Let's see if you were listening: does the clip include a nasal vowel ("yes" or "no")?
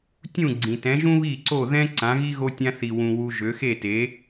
yes